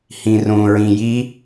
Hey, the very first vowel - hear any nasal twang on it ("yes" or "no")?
yes